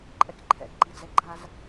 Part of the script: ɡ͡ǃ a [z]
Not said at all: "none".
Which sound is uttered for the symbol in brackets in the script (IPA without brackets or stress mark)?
z